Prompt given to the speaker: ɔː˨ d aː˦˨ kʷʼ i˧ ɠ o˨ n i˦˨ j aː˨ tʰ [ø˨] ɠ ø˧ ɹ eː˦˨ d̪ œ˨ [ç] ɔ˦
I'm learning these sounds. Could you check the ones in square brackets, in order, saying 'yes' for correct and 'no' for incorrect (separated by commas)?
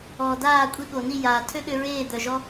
no, no